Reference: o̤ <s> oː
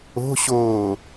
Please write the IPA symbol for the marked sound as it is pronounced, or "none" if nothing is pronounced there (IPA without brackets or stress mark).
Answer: ɕ